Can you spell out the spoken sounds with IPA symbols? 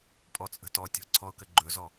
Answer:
pʼ ɔ t͡sʼ ə̤ t ɔ tʲ ɔ̤ ǀʰ ɔ ʊ̯ k ə ɡ͡ǃ ɵ z ɔ

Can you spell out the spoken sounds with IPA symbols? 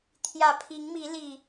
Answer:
t̪ʰ j ä˨˩ pʰ i˨˦ ŋ m i˨˦ l i˨˩

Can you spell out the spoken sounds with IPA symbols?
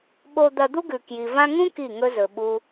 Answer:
ɓ o˧ d̪ ɐ˧ d̪ u˦ ɡ ʉ˨ k j i˨ v ã˦ ŋ ũ˦ k i˦˨ ŋ ɵ˦ z ɵ˨ ɓ u˦

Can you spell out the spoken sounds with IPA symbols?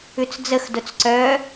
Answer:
ʉ t͡s d͡z ə x d ʊ t͡s ǀ œ

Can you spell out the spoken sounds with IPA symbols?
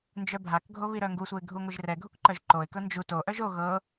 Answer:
n d͡ʒ œ bʱ a k ɡʱ o β i ɾ œ ŋ ɡ u sʷ ɛ ɪ̯ ɡʱ u ŋʷ ɨ ʒ r ɛ ɡʱ u k ǃ œ ʒ ǃ o ɪ̯ k ɤ n d͡ʒ u t o ʔ œ ʒ o ɣ ɤ

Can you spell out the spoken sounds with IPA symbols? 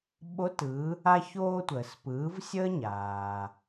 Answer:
ɓ o˧˥ t ɯ˩˧ | a˧ ç oː˧ tʷ əː˩ s p ɯː˩˧ v sʲ əː˥ ɲ aː˩

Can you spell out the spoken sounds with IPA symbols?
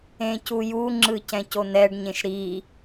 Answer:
ẽ c u j u ŋ͡ǁ ɯ c ɛ̃ c o n̪ ɛ ɖ ɲ ẽ ʃ ɾ i

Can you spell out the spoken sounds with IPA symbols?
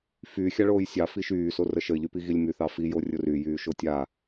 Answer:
f y xʲ a ɭ oː j sʲ ɑ f i ʃ yː s o r ə ʃ ə ɪ̯ ʎ y p i ɣ i lʲ m y θ ɑ f i j o rʲ ʊ r y j yː ʃ o tʲ a

